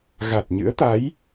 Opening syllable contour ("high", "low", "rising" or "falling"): low